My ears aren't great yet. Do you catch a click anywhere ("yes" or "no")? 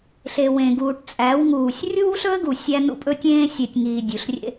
no